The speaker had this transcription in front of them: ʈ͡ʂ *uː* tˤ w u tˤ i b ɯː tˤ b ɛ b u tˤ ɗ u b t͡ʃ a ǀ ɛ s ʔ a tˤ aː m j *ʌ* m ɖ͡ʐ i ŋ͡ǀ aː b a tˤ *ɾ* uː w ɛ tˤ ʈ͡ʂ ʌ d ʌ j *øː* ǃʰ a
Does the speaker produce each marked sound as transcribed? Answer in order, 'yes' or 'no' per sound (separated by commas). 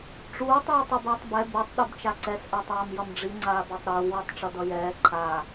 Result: yes, yes, yes, no